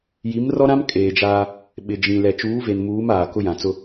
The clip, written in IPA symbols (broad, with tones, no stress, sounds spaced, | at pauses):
j i˨˦ m r ɔ˦ ɾ ã˦ m kʼ eː˨ d͡ʒ aː˦ | ɓ ɪ˨ d͡ʒ ĩ˨ l ɛ˨ t͡ʃ uː˨˦ v e˨ n m uː˨˦ m aː˨ k ʊ˦ j ã˨ t͡s ʊ˦